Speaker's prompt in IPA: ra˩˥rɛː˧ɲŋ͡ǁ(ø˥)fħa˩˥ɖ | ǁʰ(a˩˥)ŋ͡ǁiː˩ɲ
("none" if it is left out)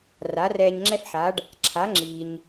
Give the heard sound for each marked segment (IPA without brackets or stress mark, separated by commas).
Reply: ɛ˥, a˩˥